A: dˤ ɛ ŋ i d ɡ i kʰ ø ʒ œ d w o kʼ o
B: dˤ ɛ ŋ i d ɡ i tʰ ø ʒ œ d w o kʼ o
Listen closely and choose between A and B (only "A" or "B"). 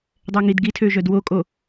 B